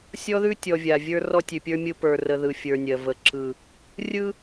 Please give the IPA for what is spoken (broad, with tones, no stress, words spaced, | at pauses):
sʲɔ˦ðʉ˦tʲɔ˨ vʲa˨vʲə˞˦ rɔ˦tʲʉ˨pʲə˞˦mʲɯ˦ pə˞˨rə˨ ðɯ˨fʲə˞˨ nʲɜ˨və˨˦ ǁɯ˨ | rʲɯ˦